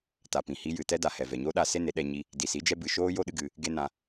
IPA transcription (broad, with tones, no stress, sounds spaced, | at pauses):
t a˨ p ĩ˨ h i˧ j ɨ˨ t ɛ˦ d a˨ h ɛ˨ v ɛ˨ ɲ o˦ ɗ a˧ s e˦ n e˨˦ ɗ ɛ˧ ɲ i˦ | d i˨ s i˨˦ d͡ʒ ɛ˧ b ɨ˨ ʃ oː˦ j o˦ ɗ ɨ˦ ɡ ɨ˧ | ɡ e˦ n ã˧